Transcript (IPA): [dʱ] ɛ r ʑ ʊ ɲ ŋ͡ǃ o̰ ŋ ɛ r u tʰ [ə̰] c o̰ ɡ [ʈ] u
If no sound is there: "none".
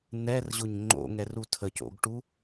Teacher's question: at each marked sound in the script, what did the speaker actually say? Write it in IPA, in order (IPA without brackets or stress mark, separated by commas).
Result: n̪, ə, ʈ